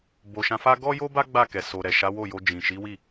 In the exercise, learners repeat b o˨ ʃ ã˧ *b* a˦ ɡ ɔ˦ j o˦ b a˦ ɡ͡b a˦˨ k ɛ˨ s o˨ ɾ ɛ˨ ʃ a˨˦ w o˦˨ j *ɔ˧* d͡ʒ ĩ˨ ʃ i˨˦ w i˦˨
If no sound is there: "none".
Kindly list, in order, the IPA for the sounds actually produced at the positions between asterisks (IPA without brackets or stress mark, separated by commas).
f, o˧